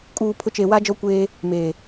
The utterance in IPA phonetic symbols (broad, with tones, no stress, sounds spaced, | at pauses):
kʼ uː˨ pʰ ʊ˨˦ t͡ʃ e˨ w a˦ d͡ʒ ɔ˦ kʷ eː˦ | m eː˨